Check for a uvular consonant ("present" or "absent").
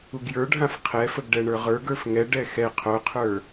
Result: present